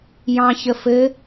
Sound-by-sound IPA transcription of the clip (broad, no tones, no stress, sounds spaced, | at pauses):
j ɑ̃ ç ə f ɘ